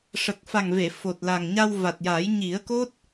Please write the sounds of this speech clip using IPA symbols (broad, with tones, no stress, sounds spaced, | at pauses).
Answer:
ʂ ə˨˩ k̚ f a˨˩ ŋ v e˨˩˨ f o˨˩ t̚ l a˨˩ ŋ ɲ a˧ w v a˨˩ t̚ j a˨˩˦ j ɲ i˨˩˦ ə̯ k o˦˥ t̚